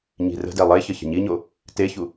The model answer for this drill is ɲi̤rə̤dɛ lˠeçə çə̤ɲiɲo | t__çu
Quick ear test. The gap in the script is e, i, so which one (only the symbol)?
e